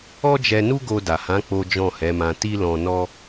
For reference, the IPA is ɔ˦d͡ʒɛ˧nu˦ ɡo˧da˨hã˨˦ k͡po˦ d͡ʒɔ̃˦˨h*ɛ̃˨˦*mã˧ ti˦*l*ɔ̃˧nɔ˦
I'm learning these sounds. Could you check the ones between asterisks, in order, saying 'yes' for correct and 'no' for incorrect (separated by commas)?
no, yes